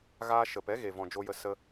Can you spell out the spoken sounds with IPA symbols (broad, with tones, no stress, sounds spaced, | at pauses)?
ɣ aː˧ ʃ ə˨ p ɛ˨˦ ɣ e˨ v ɔ̃˨ d͡ʒ o˧ j ə˧ s ə˧